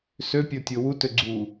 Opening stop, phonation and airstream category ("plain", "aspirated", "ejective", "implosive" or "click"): plain